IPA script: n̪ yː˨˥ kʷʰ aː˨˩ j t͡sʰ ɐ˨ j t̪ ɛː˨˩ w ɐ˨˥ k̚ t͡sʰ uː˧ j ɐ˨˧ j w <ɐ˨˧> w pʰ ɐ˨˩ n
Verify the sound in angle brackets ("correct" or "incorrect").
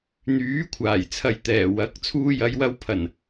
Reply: incorrect